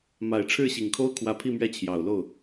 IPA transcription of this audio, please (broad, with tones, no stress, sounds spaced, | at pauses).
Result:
m a˨˩ ɪ̯ ʈ͡ʂʰ ɻ̩˥˩ ɕ i˨˩ ŋ kʰ o˥ ʊ̯ kʰ w ä˧˥ pʰ i˥˧ m ɥ ɛ˥˩ t͡ɕʰ j ɑ˨˩ ʊ̯ l o˥˩ ʊ̯